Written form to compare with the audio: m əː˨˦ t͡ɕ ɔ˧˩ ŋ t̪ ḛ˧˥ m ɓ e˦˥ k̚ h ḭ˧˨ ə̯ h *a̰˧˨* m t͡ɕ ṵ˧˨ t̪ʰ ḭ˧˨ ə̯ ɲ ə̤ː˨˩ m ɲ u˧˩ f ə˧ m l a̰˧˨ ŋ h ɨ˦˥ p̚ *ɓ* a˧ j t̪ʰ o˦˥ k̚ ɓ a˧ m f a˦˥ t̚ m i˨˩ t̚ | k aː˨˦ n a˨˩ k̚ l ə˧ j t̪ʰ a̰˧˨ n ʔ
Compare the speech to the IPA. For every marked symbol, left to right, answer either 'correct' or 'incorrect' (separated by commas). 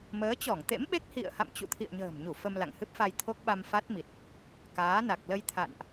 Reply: correct, incorrect